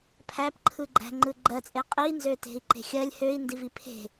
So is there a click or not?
yes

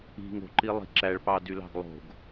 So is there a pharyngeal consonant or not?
no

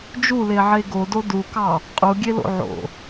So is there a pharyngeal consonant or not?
yes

